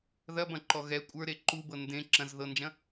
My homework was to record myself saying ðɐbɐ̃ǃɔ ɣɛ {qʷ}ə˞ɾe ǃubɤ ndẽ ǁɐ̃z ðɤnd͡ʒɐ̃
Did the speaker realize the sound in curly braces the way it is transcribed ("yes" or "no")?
no